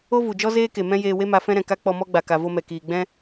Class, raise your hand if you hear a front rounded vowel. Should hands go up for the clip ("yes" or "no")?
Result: no